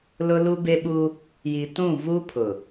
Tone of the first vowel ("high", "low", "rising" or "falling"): high